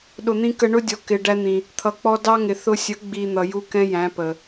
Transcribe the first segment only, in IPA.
ɗ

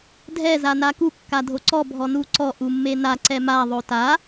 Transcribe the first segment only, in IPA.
dʱ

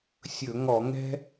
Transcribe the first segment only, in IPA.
sʲ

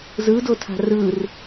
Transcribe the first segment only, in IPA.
z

